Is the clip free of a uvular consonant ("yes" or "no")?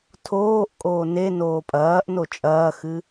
yes